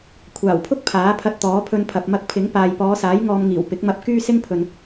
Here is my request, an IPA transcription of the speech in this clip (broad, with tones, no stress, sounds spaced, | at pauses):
kʷʰ aː˨˩ w pʰ ʊ˥ k̚ pʰ aː˨˥ pʰ ɐ˧ t̚ t̪ ɔː˨˥ pʰ ɵ˧ n pʰ ɐ˨ p̚ m ɐ˧ k̚ pʰ ɪ˨˥ ŋ p aː˨ j p ɔː˨˧ s aː˨˥ j ŋ ɔː˧ m ŋ iː˨˩ w p ɪ˨˥ k̚ m ɐ˧ p̚ k yː˥ s ɪ˥ ŋ pʰ ɵ˨ n